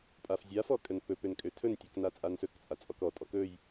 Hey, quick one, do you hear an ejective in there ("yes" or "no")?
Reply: yes